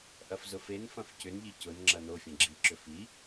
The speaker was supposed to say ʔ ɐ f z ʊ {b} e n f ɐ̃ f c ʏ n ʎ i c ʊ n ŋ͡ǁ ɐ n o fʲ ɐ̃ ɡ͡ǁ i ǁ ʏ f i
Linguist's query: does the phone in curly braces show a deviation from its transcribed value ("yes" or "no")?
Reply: yes